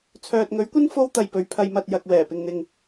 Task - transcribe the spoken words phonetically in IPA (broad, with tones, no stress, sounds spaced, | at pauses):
t͡sʰ œː˨ t̚ ŋ ɵ˨˥ ɥ kʷ ɐ˥ n f o˥ w t̪ ɐ˧ j p ɵ˨˧ ɥ pʰ ɐ˧ j m ɐ˨ t̚ j ɐ˨ k̚ w ɛː˨˩ p ɪ˨ ŋ n̪ ɪ˨ ŋ